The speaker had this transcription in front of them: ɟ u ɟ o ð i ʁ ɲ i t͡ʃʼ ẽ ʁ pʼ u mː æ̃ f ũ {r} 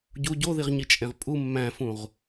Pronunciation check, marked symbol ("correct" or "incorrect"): incorrect